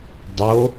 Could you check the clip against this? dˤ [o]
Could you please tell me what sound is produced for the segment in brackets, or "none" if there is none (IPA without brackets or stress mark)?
o